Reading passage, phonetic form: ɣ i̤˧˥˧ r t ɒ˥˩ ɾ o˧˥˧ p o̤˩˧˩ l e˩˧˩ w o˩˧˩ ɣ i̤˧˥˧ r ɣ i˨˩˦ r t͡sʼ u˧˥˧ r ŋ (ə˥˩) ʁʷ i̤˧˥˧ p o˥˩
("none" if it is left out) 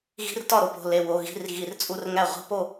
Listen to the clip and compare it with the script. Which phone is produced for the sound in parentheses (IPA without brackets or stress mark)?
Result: æ˥˩